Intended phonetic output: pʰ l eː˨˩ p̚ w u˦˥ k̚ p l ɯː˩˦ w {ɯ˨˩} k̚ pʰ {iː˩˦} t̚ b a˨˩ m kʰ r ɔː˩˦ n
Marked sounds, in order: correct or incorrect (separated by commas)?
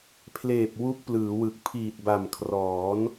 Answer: correct, incorrect